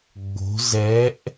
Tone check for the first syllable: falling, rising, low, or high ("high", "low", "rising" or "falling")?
rising